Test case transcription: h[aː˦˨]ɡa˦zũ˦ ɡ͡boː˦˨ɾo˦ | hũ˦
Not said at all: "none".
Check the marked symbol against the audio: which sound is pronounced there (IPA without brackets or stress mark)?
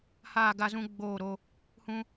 aː˦˨